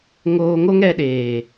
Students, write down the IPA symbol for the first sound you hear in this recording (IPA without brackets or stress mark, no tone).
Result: ŋ